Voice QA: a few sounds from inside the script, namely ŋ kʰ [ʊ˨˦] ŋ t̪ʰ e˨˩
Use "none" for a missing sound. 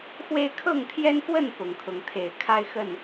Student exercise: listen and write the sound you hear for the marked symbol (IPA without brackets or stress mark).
ʊ˨˦